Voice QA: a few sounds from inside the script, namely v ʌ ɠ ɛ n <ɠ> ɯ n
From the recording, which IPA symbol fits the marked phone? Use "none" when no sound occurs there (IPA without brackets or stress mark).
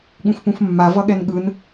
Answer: ɠ